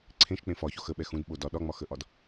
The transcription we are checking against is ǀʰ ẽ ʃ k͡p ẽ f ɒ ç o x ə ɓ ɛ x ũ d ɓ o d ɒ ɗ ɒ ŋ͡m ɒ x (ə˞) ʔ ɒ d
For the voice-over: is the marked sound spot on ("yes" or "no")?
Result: no